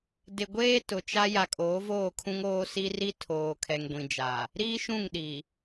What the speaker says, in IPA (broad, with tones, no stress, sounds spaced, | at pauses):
d ɪ˨ ɡʷ eː˦ t ʊ˨ t͡ʃ a˦ j a˨ kʼ oː˨˦ v oː˦˨ kʰ ũ˦ ŋ oː˦ s i˦ r i˦ tʰ oː˨ kʰ ɛ˨ ŋ ɡʷ ĩ˨ d͡ʒ a˨ | ɾ iː˦ ʃ ũ˦˨ ŋ ɗ i˨